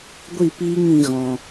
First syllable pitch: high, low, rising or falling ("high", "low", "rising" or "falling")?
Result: falling